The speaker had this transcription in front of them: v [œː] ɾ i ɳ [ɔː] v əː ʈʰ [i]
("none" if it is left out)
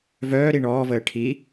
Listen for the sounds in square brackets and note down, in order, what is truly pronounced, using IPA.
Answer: œː, ɔː, i

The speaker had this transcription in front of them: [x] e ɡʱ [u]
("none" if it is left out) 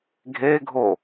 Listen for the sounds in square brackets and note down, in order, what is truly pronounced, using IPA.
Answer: ɡʱ, o

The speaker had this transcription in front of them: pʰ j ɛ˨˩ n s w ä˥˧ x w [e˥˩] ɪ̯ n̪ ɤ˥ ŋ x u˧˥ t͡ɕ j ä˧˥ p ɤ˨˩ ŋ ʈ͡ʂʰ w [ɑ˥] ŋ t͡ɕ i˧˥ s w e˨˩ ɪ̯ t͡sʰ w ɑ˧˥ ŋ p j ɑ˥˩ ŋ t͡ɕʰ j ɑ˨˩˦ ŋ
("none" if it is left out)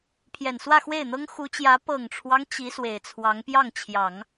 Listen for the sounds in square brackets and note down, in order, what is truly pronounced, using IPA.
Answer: e˥˩, ɑ˦

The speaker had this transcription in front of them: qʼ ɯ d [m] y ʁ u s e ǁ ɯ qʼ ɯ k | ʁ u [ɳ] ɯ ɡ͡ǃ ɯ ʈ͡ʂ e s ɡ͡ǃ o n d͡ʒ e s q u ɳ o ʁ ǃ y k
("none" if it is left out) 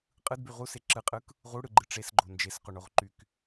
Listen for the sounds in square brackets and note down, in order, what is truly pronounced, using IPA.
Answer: b, ɽ

